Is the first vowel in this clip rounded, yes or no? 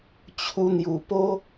yes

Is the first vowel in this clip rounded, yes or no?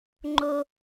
yes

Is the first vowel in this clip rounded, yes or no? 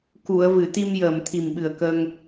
yes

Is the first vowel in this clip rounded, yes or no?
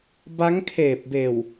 no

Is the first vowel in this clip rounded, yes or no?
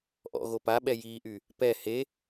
yes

